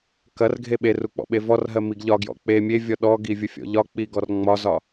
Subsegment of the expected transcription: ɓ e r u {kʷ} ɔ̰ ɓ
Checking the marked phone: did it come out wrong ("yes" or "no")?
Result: yes